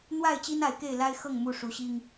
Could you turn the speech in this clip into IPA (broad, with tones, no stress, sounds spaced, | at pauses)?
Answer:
n̪ w a˥˨ ɪ̯ t͡ɕ i˦ n a˨˦ ɪ̯ k e˥˨ ɪ̯ l a˦ ɪ̯ x ɤ˥˨ ŋ m u˥˨ ʂ u˨˦ ɕ i˦ ŋ